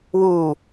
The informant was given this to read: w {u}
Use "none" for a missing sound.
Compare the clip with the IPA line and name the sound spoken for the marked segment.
u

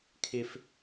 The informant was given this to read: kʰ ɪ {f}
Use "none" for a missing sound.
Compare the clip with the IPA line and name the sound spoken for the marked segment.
f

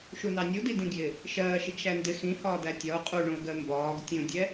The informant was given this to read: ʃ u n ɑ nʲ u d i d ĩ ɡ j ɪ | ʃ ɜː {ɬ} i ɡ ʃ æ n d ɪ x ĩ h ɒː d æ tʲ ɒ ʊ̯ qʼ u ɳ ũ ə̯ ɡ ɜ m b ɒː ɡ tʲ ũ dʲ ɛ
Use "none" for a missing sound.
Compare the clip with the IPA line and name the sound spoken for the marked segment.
ʃ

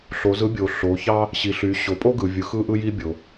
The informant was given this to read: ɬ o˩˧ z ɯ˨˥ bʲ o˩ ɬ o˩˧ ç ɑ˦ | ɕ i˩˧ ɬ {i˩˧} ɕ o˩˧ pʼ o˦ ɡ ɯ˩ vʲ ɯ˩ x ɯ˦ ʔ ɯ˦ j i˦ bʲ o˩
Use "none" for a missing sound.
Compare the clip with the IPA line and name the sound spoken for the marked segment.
y˩˧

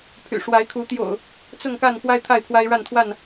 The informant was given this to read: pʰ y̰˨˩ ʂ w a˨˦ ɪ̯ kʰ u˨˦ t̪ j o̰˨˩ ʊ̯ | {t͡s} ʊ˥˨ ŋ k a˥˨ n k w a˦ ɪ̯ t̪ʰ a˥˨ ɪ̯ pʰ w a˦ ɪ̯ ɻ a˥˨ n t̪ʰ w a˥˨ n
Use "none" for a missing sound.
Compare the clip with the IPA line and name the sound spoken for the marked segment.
t͡s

